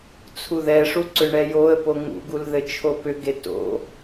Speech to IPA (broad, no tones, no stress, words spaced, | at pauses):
t͡sʰuðɛʂu ǀʏɳɛjoə̯po ŋṵɡul ðɘt͡ʃʰopʏɡe to̰